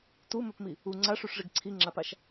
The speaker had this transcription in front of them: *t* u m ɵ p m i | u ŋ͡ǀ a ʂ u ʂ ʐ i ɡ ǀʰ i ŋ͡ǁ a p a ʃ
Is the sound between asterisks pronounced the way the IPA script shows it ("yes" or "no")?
yes